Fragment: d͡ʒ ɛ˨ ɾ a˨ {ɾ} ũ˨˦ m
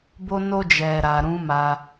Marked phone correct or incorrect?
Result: correct